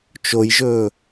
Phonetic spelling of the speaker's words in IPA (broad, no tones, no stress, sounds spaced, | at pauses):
t͡ʃ o j ʒ ɵː